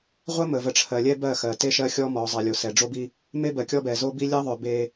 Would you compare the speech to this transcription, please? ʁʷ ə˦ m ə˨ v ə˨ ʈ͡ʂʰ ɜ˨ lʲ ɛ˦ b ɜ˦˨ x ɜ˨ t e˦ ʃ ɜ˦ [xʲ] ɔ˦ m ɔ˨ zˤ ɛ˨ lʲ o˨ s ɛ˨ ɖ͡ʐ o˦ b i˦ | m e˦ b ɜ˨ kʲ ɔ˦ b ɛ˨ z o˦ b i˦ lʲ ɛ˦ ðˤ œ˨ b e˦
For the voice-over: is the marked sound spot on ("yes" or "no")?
yes